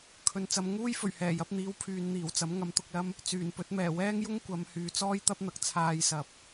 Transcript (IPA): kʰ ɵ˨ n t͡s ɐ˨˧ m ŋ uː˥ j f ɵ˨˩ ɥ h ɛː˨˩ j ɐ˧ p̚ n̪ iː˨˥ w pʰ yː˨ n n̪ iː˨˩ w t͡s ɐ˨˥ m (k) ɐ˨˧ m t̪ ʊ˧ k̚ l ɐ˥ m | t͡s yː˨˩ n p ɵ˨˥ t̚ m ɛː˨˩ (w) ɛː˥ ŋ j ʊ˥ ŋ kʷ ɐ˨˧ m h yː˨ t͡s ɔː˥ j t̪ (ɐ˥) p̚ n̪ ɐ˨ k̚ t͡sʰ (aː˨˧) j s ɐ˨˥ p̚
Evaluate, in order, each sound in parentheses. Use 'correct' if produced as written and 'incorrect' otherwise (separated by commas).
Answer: incorrect, correct, correct, incorrect